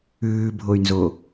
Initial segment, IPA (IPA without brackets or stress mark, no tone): ʉː